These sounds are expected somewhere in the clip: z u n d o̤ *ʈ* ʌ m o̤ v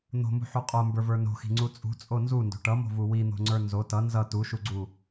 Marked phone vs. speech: correct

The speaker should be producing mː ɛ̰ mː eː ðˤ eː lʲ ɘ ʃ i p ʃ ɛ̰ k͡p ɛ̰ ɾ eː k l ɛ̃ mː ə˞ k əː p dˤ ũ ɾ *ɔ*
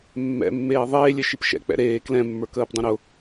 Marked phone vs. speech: incorrect: ʊ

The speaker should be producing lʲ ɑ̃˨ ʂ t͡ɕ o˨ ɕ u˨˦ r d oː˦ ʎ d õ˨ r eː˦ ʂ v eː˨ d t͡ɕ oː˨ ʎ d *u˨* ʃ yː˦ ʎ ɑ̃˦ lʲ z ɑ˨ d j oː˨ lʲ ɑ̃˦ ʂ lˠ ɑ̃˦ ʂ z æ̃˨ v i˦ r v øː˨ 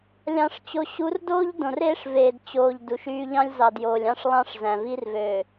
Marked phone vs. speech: correct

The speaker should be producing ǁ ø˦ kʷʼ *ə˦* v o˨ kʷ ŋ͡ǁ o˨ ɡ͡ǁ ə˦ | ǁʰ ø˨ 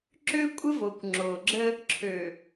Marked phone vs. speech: correct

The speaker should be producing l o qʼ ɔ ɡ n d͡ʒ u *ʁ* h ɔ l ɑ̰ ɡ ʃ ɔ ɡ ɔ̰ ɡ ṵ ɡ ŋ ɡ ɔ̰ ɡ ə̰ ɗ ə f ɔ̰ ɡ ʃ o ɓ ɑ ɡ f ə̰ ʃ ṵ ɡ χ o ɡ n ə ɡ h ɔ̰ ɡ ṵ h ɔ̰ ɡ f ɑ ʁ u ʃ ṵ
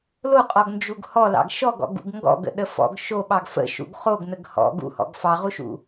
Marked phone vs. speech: incorrect: ɡ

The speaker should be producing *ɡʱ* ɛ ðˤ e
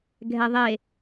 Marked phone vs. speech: correct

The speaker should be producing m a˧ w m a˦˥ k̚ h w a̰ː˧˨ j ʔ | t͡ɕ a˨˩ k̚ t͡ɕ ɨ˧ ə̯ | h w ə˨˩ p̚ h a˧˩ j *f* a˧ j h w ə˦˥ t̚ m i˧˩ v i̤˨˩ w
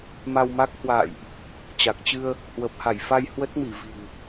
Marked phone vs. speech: correct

